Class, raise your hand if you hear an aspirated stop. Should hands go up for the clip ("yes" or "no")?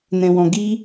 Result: no